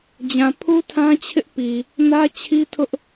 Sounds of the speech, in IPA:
d͡ʑ ã˨ pʰ u˦ tʰ ã˦ t͡ɕʰ ɪ˦ ʔ p i˨ | n ä˦ t͡ɕʰ i˦ tʰ ʊ˦ ʔ

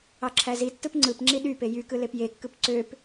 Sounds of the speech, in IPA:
ɑ ǁʰ æ z i tː ɯ p ŋ͡ǀ ɯ p ŋ͡ǁ i ɗ y p e j y k ɯ l e p j e kː ɯ p ǀ ø p

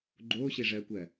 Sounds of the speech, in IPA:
ɡ͡ǃ oː ɕ e ʐ ɜː kʷ ɜ

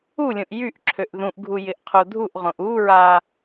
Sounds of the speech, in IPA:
u lʲ õ ʔ j y ʔ ǁʰ ø ʔ ð ũ ʔ ɡʱ u j ɪ ʔ qʰ o dʱ u ʔ ʁ õ ʔ u ɹ a

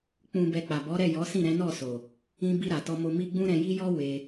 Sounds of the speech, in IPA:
k͡p ũ˨ b ɛ˨ k͡p a˨ b ɔ˨˦ ɾ ɛ˦˨ j ɔ˨˦ s ĩ˦˨ ɾ ɛ̃˨˦ n ɔ˦˨ s o˨ | ĩ˧ b i˧ ɾ a˨ t ɔ˧ m o˧ m i˦ ɡ͡b ũ˦ ɾ ɛ̃˧ j i˦ j ɔ˦ w e˧

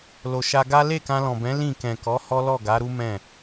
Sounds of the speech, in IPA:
l o˨ ʃ a˧ ɡ a˦ l e˦˨ k ã˧ l ɔ̃˨ b ɛ̃˨˦ l ĩ˦˨ k ɛ̃˨ k ɔ˨˦ h ɔ˦ l ɔ˦˨ ɡ a˨˦ ɾ u˦ m ɛ̃˦˨

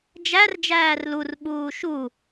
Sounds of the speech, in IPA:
d͡ʒ æ r d͡ʒ æː r l u r ɓ uː ʃ u

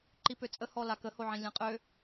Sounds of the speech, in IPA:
ǃ i p ø t͡sʼ ə h ɔ l a k ə h o ʕ ĩ lʲ ɛ̃ qʼ ø

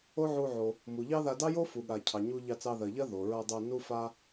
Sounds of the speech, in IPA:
o˥ ʕ u˧ ʕ o˩ | m u˩ ʎ ɑ˥ ð a˧ d ɑ˥ j o˥ f u˩ ɠ a˩ cʰ ɑ˩ ɲ u˧ ʎ ɑ˧ t͡s ɑ˧ ð ɜ˩ ʎ ɜ˥ ð o˩ ɹ ɜ˧ dˤ o˧ n u˥ f a˥

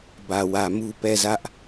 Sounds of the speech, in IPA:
b ä˨ w ä˨ m u˦ p ɛ˦˨ z ä˦ ʔ

